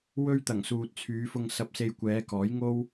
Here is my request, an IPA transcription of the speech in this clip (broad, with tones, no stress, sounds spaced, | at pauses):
w ɵ˥ ɥ t̪ ɐ˨˩ ŋ s uː˨ t̚ t͡sʰ yː˨˧ f ʊ˧ ŋ s ɐ˧ p̚ s e˧ j kʷ ɛː˨˧ k ɔː˨˥ j ŋ o˥ w